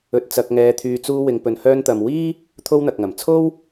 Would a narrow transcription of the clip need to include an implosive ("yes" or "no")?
no